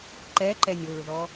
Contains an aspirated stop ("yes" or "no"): no